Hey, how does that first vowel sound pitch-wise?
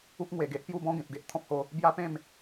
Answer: high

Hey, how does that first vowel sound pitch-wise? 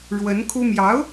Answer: rising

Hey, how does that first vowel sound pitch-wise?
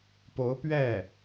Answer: rising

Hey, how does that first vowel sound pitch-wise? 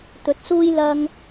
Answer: low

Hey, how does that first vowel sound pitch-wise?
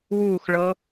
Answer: falling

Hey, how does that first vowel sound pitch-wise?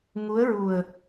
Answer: rising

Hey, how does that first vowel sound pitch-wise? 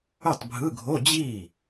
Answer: falling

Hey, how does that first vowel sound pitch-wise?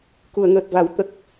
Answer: low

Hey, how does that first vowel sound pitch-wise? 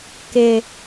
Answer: high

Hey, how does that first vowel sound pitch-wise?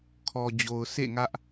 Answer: low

